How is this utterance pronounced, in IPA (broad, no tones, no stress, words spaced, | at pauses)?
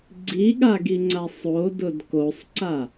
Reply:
ɡ͡ǀiɠaɡiŋ͡ǀa sˤodʊd kosˤǀa